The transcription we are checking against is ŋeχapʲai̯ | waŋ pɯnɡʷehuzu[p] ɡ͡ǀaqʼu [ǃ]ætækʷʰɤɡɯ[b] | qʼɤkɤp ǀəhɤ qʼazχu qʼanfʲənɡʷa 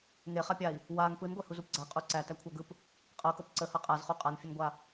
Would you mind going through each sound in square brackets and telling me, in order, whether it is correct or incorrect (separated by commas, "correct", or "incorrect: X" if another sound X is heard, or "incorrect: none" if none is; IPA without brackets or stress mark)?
correct, incorrect: ǀ, incorrect: p